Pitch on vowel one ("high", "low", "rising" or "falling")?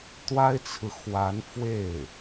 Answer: high